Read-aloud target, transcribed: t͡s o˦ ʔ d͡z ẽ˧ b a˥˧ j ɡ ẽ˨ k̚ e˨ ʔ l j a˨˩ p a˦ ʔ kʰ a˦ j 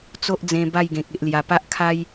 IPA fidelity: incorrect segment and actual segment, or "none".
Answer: none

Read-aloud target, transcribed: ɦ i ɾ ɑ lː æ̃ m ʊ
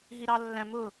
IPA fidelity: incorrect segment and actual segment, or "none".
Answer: none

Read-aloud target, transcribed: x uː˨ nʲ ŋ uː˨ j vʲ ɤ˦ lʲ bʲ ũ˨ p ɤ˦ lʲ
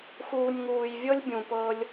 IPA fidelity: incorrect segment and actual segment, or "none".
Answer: none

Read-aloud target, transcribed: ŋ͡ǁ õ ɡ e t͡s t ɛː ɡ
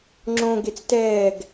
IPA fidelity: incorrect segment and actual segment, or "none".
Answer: none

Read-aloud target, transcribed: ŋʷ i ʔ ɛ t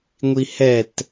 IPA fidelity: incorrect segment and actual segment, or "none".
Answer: ʔ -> h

